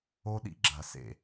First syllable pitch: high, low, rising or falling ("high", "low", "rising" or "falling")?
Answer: high